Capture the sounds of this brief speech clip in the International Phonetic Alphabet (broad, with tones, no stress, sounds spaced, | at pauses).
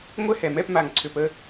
ŋʷ ɛ˥˧ h ɛ˨ m ɛ˥˧ p m a˨ ŋ ǀʰ ʏ˨ p ə˥˧